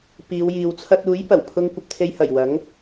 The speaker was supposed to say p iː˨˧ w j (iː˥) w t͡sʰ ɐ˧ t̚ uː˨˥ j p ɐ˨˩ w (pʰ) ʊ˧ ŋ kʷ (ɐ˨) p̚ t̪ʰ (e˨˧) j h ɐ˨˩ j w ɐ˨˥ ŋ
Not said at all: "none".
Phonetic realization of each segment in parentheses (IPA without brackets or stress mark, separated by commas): iː˨, pʰ, ɐ˧, e˧